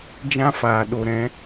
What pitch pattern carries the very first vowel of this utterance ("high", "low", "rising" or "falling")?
high